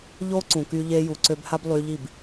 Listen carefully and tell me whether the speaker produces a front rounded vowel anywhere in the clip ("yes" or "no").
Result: yes